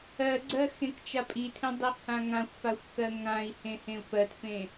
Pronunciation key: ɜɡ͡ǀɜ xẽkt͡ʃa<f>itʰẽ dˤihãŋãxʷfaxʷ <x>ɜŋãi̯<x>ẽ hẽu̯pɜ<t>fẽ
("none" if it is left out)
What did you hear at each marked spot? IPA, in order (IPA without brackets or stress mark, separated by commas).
pʼ, k, h, t